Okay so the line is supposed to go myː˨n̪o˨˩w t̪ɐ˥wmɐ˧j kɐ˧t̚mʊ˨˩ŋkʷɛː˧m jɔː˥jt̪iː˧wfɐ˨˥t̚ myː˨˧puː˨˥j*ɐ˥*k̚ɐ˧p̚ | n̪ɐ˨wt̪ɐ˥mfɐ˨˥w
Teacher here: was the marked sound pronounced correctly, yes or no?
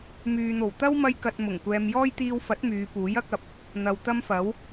yes